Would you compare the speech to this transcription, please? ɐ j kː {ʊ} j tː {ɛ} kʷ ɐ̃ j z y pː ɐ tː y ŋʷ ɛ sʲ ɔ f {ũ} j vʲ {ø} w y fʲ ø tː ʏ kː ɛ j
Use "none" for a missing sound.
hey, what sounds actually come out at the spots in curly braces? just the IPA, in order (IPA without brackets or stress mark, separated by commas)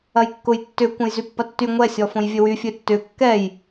ʊ, ʏ, õ, ø